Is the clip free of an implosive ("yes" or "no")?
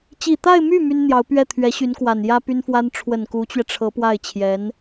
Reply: yes